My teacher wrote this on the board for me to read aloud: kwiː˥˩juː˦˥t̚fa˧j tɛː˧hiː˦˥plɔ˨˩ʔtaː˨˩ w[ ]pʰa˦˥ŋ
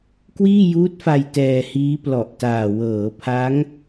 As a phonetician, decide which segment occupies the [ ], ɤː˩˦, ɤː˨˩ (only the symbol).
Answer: ɤː˩˦